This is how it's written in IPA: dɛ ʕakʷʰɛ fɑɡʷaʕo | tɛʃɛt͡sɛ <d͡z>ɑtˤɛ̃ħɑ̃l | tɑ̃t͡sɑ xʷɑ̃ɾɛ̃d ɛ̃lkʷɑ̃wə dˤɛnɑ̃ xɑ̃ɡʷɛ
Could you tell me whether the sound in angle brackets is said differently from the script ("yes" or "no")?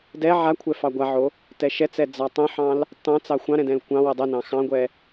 no